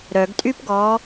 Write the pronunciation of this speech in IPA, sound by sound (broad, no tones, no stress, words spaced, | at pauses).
ɾœɡtʼypɡɔ